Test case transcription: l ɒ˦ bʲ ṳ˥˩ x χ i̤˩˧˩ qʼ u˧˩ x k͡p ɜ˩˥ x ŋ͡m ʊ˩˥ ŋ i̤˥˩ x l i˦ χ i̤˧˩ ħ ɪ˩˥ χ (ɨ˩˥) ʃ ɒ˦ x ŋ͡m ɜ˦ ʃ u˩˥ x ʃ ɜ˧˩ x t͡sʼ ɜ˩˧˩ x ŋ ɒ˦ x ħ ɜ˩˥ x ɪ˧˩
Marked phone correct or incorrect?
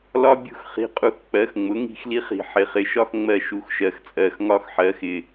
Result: incorrect: ɪ˩˥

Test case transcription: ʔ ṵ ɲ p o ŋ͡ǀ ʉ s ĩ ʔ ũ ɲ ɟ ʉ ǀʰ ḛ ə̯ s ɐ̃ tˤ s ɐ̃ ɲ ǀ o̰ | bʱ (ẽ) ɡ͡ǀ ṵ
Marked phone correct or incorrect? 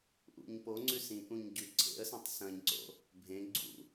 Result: correct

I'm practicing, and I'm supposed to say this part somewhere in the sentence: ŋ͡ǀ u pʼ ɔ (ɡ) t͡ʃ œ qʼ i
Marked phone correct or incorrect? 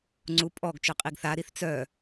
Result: correct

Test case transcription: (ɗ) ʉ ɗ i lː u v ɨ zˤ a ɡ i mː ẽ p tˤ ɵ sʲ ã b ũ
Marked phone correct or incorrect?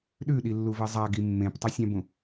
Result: correct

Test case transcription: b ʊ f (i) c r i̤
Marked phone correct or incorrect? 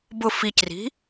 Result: correct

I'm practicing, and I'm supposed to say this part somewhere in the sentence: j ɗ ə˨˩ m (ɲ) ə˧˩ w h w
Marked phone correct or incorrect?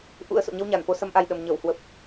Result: correct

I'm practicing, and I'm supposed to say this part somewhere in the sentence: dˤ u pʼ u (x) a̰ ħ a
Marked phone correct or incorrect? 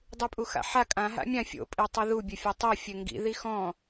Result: correct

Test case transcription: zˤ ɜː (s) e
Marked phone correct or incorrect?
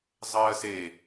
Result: correct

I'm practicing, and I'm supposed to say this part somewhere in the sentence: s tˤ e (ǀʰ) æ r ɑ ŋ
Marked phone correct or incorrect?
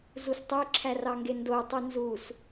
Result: incorrect: ǁʰ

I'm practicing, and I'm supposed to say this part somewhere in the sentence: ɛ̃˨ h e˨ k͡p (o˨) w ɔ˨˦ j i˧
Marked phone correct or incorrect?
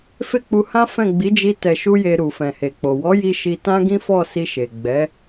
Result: correct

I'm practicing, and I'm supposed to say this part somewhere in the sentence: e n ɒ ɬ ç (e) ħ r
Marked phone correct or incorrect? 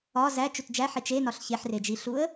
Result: correct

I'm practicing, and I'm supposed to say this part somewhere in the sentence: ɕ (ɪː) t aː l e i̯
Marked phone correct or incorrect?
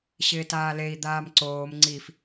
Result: correct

